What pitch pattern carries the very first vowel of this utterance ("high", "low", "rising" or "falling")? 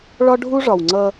high